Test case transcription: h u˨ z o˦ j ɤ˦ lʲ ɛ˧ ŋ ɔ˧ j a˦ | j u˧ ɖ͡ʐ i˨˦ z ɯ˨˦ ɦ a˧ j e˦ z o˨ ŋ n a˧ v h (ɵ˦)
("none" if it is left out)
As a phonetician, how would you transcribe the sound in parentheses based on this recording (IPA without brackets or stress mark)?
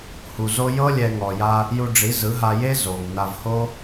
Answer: o˦